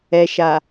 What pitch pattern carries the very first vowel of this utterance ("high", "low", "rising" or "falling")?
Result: low